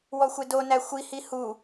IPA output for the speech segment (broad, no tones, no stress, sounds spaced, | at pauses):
w ɔ xʷ e d o n æ xʷ i h i h u